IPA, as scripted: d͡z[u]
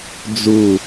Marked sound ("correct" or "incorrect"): correct